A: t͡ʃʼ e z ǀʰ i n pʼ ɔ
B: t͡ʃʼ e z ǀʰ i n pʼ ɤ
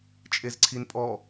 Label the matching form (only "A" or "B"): A